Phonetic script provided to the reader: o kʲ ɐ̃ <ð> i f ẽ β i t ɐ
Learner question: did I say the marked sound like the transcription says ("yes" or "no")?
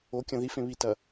yes